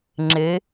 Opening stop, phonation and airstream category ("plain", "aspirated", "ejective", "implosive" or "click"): click